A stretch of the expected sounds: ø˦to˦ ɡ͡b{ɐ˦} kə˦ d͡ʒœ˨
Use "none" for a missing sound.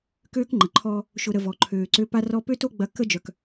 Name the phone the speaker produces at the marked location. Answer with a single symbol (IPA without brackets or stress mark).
ɐ˦